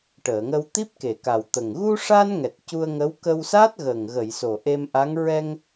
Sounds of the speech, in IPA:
ʈ əː˨˩˨ ŋ ə˧ w t̪ i˦˥ p̚ k e˨˩ k a˨˩ w t̪ ə˨˩ ŋ ɣ u˧ ʂ a˧ n ŋ ɛ˨˩ t̚ c u˧ ə̯ ŋ ə˧˥ w k ə˧ w s a˦˥ t̚ ɣ ə˨˩ ŋ ɣ ə˨˩˨ j s o˨˩ ʔ e˧ m ʔ a˧˥ ŋ ɹ ɛ˧ ŋ

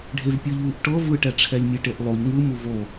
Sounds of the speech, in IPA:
ɖʱ e v pʲ ɯ ʎ uː ʔ ʈ ɤ v ɯ ʈ ɛ ʈ͡ʂʰ ɛ lʲ mʲ e ʈ e ʔ lˠ o ʎ ŋ ɯ m u v o

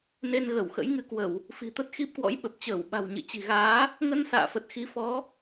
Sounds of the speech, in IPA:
n e˧ n ɣ ə˧˩ w x ə̰˧˥ j ŋ ɨ˧ k w ə˧˩˨ w | f i̤˨˩ t̪ ə˦˥ t̚ x i˦˥ p̚ k w ɔ̰˧˥ j ɓ ə˨˩ p̚ t͡ɕ əː˧˩ w ɓ a̤˨˩ w ɲ ɨ̰˧˨ t͡ɕ i̤˨˩ ɣ aː˨˦ | ŋ ə˧ n s a̰ː˧˨ f ə˨˩ t̚ x i˨˦ f ɔ˨˦

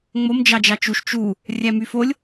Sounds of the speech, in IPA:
ŋ͡m o m d͡ʒ ɑ d͡ʒ ɑ t͡ʃ u ʃ t͡ʃ u | rʲ æ m y f o lʲ

